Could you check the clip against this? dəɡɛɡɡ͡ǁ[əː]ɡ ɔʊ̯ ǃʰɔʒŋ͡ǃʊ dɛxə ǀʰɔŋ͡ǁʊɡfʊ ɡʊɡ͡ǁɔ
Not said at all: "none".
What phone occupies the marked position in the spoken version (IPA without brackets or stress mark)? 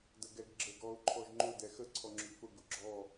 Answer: ə